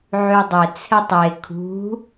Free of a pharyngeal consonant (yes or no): no